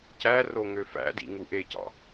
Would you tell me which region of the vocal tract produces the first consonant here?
palate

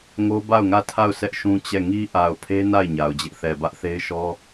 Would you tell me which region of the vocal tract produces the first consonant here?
velum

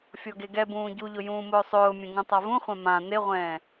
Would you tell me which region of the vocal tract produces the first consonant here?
lips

